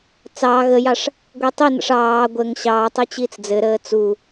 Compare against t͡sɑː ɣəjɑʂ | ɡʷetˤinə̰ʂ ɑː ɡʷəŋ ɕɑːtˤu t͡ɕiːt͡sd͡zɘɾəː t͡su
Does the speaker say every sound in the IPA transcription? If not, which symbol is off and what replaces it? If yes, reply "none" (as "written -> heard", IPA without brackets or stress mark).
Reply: none